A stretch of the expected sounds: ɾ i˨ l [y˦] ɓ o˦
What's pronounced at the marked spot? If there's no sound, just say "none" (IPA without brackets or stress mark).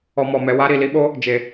i˦